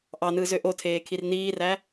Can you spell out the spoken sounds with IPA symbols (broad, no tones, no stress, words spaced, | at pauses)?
ʔɑnɯːzø ʔotʰeːkʰir niːræ